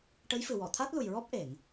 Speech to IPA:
ʈə˧˥jfɨ˨˩wɔ˨˩˨ t̪ʰa˦˥t̚lu˨˩jɹɔ˦˥p̚ ʔe˨˩˨ŋ

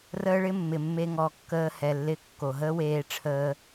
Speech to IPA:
rəː˦ɭɪ˦ mːɪ˨mːe˧ ŋɔ˨kːəː˧ hɛ˨lːɪ˧ kːo˨ɦəː˦ weː˧ʈ͡ʂʰəː˧

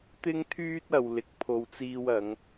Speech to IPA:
t̪ɪ˥ŋt̪ʰyː˥t̚ɐ˨w lɪ˨˥k̚pʰo˧wt͡siː˥wɐ˨˥ŋ

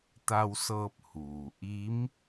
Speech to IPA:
t̪a˧wsɤː˧p̚ huː˩ ʔi˧˥m

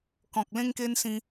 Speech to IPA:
kɔ̃˨k̚ lẽ˦ŋke˦n sĩ˦

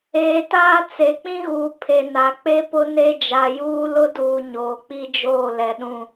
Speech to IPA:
eː˨taː˦ t͡se˨k͡pĩ˦ɣuː˨ pʰe˨na˨ k͡pe˦pʊ˦ne˦ d͡ʒa˨juː˦lʊ˦duː˨ ɲoː˨k͡pi˦d͡ʒoː˦˨ lɛ˨ɗũ˦˨

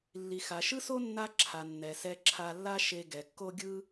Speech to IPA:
lːi˩xa˩ʃɯ˥so˥ nːa˥ǁʰa˩nːɛ˩ sɛ˧ǁʰa˧lːa˥ ʃe˧ ɡɛ˩kːo˥ ɡʲɯ˥

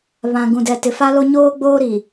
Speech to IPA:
βã˨ ɡũ˨dɛ˨tɪ˨ fa˦lo˦ ɲoː˦ɡ͡boː˦ɾi˨

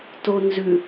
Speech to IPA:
tonzʉ

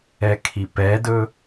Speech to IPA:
ɛkʰipɛdɵ

